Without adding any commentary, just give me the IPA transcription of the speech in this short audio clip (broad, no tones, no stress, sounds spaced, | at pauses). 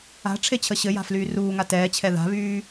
a̤ ʈ͡ʂʰ e t͡ɕʰ ə ɕ ɘ j a̤ f l yː r uː ŋ a t ɛː t͡ɕʰ ɛ ð a̤ β yː